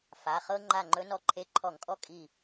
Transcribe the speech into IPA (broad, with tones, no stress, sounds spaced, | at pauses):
f a˩˧˩ χ ɤ˦ ŋ͡ǃ a˧˩ ŋ͡ǃ ɵ˨˦ n ɔ˧˩ ǃʰ e˧˩ ǃʰ ɔ˧˩˧ ŋ kʼ ɔ˦ kʼ i˧˩